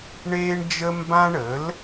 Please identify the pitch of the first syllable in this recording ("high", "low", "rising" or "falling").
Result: high